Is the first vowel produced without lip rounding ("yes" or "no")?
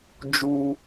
no